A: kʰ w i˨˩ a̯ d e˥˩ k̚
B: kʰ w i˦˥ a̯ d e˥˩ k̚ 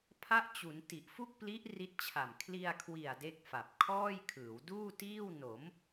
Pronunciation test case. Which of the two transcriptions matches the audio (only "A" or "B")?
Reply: A